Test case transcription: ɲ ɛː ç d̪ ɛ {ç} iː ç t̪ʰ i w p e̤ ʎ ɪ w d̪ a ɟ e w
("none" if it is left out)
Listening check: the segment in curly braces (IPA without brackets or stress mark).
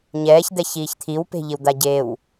ç